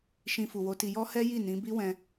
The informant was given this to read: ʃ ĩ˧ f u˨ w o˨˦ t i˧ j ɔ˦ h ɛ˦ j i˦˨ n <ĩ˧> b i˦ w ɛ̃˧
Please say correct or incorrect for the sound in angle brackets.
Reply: incorrect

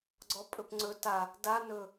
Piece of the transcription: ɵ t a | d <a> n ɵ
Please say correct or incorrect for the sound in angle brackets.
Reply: correct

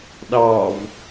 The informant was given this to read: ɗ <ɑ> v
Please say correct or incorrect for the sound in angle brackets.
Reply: correct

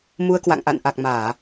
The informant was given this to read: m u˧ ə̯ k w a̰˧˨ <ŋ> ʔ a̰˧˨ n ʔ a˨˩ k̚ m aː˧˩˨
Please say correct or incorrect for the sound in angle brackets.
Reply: correct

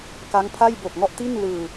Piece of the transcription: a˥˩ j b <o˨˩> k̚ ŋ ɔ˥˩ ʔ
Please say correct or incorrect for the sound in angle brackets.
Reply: correct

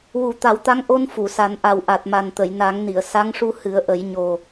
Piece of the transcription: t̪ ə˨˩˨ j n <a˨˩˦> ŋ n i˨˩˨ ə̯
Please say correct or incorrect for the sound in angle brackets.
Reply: correct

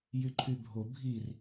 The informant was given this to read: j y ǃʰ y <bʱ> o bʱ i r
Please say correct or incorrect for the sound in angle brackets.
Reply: correct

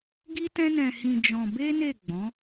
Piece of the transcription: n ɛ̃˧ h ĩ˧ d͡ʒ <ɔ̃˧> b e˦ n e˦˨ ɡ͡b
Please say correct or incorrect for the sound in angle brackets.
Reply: correct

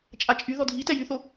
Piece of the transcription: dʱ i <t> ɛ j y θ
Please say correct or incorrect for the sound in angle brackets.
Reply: correct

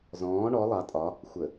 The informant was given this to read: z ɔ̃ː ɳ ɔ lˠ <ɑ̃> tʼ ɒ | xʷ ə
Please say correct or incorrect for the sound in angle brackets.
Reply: incorrect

